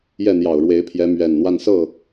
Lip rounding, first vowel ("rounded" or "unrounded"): unrounded